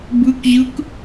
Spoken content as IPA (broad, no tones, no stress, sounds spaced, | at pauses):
b ɯ k ʑ ɯ k